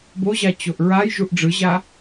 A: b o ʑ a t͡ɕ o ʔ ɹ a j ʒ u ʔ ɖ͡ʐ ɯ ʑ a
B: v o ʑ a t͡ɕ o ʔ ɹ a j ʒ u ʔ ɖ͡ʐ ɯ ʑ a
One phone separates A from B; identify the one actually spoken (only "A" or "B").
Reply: A